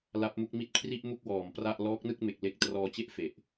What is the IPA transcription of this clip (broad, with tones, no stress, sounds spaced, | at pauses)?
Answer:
l a˦˥ p̚ m u˦˥ k̚ m i˥˩ t̚ kʰ r i˥˩ ʔ m u˥˩ k̚ w ɔː˨˩ m p r a˥˩ ʔ l ɔː˦˥ k̚ n ɯ˥˩ k̚ m e˨˩ k̚ l e˦˥ k̚ t r ɔː˧ t͡ɕ e˥˩ ʔ f e˨˩ ʔ